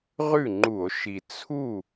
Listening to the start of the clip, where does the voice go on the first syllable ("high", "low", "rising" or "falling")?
falling